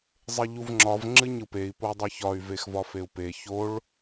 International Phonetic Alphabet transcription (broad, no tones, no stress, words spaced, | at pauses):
zˤeʎuvŋ͡ǁɒv ŋ͡ǁɨɲɯpei̯ podˤɯçɒy̯ vexvɒfeu̯pe çoɭ